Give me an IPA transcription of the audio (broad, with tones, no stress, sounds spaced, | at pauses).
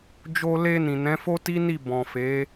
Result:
d͡ʒ o˧ l e˧ n ĩ˨ n ɛ̃˨˦ f o˦ t i˦ n i˦˨ b ɔ̃˨ f e˨˦